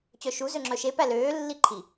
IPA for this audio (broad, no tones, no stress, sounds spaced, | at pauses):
t͡ɕ œ ʃ u z ø ŋ͡ǁ œ ʃ e p æ l øː lː i ǃʰ i